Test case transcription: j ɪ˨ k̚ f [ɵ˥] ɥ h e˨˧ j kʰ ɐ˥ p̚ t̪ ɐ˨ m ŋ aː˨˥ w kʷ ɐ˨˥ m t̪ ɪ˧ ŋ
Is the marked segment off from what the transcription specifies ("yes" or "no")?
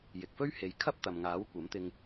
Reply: no